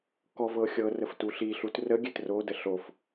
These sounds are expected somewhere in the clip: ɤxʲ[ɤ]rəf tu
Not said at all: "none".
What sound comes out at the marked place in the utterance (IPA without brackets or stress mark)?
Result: ɤ